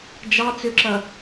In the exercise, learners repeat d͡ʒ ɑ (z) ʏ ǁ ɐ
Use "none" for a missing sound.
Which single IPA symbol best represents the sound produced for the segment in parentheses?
t͡s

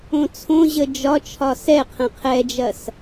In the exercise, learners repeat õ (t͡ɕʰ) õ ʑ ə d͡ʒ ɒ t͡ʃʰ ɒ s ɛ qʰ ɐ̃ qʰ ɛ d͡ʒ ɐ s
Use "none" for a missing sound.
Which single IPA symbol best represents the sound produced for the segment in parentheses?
t͡sʰ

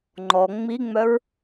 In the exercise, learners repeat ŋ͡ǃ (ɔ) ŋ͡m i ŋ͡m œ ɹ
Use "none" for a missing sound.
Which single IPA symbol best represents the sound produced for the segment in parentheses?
ɔ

